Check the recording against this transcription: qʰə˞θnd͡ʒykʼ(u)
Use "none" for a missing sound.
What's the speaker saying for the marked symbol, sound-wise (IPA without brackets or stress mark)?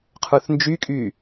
y